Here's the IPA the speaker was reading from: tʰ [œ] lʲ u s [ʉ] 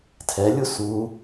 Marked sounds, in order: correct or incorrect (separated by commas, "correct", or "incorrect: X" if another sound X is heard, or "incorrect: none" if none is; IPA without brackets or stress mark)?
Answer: incorrect: ɛ, incorrect: u